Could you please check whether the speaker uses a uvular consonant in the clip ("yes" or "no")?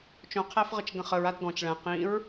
yes